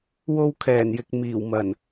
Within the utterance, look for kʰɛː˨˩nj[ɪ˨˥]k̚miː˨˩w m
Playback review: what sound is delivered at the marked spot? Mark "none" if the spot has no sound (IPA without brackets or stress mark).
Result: ɪ˨